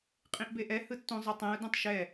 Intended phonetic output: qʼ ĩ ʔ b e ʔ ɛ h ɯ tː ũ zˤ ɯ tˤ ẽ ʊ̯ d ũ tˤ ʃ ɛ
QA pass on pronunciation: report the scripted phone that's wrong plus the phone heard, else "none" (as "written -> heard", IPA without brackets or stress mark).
none